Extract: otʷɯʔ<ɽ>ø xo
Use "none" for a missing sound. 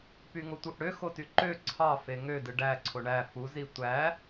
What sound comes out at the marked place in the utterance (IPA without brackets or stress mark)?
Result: ɽ